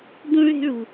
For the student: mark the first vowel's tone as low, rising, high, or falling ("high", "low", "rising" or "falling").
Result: high